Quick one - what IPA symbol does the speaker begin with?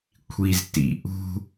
kʷʰ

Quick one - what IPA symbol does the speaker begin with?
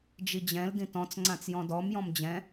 d͡ʒ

